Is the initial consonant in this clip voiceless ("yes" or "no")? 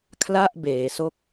yes